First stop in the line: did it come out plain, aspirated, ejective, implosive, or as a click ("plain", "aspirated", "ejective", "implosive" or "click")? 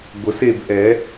plain